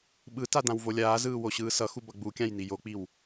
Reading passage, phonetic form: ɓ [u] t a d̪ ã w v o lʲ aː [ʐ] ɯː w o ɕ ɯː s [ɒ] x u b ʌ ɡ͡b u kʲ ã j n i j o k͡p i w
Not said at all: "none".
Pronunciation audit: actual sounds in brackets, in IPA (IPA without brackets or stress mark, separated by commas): ɯ, z, ʌ